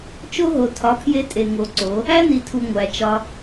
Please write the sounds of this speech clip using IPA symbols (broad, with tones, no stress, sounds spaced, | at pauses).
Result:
t͡ʃ o˦ ɦ o˨ tʰ ɒ˨˦ pʰ j e˧ tʼ e˨ ŋ o˨˦ ǀ o˨˦ | æ˦ n i˨ tʰ u˨ ŋʷ æ˨ t͡ʃ ɒ˧